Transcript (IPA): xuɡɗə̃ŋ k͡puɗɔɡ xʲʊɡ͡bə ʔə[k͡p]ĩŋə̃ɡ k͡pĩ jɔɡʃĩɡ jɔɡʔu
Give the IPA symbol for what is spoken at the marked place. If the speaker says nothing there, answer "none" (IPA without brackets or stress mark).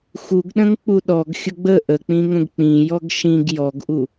k͡p